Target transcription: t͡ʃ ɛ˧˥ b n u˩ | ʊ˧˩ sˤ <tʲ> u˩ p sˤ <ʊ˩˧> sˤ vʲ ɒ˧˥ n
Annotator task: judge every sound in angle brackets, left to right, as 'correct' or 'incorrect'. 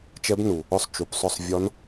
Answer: incorrect, incorrect

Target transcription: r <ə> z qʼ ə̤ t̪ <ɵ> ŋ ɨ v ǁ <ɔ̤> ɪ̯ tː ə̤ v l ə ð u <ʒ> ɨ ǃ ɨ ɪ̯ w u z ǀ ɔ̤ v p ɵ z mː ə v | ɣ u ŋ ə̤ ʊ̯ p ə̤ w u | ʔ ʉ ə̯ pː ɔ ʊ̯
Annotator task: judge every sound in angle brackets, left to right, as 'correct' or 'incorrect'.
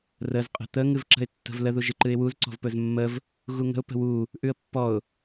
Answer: correct, incorrect, incorrect, correct

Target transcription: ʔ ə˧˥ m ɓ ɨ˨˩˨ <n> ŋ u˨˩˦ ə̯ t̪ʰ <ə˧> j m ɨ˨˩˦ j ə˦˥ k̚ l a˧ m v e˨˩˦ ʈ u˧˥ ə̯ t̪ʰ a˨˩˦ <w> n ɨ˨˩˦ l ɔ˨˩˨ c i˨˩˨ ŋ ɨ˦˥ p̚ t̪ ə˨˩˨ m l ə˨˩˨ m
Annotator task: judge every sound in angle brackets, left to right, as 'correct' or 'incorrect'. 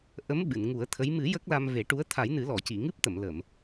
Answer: correct, incorrect, incorrect

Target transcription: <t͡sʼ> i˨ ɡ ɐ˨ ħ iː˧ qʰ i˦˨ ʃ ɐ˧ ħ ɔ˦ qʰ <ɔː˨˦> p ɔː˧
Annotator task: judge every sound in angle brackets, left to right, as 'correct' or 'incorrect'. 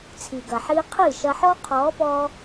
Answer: incorrect, correct

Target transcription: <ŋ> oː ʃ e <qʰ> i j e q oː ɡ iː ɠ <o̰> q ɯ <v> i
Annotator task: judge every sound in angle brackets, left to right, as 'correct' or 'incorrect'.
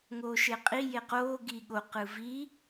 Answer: correct, incorrect, incorrect, correct

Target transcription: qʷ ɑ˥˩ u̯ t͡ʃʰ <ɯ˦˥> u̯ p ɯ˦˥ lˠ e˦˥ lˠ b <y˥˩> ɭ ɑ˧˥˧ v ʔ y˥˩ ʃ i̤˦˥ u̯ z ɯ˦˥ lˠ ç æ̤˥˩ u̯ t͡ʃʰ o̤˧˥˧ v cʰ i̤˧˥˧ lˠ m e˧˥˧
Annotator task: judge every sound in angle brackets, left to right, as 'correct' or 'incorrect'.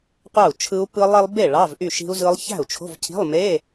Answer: correct, incorrect

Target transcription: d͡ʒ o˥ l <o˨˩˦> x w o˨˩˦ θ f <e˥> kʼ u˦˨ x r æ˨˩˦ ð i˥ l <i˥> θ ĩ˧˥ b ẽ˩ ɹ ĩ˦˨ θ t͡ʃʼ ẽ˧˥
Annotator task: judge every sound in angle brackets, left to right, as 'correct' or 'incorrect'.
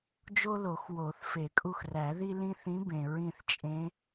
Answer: correct, incorrect, incorrect

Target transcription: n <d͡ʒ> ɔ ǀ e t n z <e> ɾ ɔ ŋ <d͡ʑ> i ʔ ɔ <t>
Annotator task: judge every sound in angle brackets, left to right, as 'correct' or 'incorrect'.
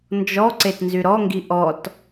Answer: correct, incorrect, incorrect, correct

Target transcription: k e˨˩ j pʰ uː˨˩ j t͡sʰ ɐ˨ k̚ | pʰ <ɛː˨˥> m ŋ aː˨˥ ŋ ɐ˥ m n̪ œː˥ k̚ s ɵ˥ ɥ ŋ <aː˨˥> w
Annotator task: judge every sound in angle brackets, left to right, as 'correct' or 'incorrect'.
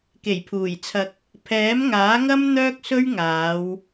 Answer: correct, incorrect

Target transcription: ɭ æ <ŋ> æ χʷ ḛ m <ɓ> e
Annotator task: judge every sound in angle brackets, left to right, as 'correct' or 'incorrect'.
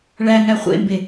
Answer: correct, incorrect

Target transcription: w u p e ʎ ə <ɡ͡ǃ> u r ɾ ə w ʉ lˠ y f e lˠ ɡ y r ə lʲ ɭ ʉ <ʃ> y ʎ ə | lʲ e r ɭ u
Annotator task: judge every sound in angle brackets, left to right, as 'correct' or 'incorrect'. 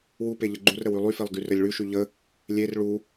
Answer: correct, correct

